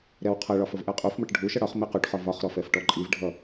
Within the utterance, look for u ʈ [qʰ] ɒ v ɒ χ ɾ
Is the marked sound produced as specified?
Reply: no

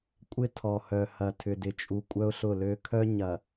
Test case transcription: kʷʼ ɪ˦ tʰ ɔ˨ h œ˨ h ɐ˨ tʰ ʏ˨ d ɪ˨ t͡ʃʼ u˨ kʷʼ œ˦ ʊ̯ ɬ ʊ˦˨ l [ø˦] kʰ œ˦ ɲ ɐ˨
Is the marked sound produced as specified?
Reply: yes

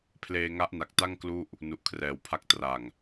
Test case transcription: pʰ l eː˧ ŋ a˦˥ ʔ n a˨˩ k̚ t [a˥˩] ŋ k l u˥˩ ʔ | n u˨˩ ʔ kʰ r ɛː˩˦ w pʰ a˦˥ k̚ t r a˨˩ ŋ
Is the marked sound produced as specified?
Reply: yes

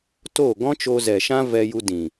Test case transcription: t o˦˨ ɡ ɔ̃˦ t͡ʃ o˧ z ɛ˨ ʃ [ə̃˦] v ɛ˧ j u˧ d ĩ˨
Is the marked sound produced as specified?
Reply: no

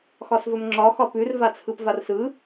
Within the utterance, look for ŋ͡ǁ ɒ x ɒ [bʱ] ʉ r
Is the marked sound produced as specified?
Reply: no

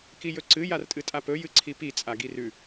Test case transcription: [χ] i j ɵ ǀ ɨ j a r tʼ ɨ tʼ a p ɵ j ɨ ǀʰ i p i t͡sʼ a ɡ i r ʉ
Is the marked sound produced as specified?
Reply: no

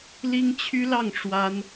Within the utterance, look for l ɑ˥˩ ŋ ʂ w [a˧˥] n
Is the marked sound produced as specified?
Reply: no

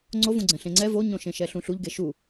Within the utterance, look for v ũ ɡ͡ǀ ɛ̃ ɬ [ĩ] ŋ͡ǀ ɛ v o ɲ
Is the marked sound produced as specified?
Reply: no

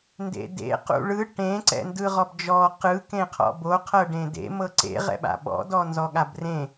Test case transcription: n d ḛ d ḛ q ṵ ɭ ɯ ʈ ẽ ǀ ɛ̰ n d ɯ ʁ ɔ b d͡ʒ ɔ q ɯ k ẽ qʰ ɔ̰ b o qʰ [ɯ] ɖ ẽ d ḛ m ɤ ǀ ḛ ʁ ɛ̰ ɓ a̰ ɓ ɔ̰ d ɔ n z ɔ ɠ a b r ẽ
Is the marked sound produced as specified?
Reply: no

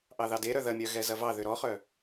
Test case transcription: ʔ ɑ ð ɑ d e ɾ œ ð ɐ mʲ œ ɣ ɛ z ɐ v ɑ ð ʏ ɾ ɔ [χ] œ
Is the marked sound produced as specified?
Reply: yes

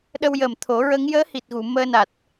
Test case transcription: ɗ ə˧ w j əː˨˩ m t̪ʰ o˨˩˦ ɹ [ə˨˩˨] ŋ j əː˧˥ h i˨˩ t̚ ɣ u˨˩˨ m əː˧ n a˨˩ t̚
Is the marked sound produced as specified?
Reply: no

